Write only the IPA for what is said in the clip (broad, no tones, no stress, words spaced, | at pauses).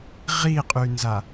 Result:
ʁiqʼynza